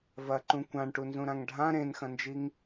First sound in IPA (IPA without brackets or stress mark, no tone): v